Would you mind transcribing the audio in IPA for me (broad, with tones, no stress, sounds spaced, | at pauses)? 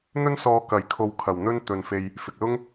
n̪ ɵ˥ n s ɔː˧ k ɐ˨˥ j kʰ o˧ w kʰ ɐ˨ w n̪ ɵ˥ n t̪ ɵ˨ n f e˧ j | f ɪ˨ k̚ l ʊ˥ ŋ